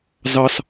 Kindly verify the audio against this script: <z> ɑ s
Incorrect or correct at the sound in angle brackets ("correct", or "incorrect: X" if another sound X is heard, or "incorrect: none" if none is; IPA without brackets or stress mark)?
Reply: correct